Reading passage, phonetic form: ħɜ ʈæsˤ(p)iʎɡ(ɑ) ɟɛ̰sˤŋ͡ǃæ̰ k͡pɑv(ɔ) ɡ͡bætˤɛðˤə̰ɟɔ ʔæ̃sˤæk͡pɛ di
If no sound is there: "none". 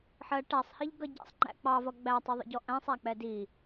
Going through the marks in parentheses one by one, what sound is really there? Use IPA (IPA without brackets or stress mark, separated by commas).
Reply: h, ʌ, ʌ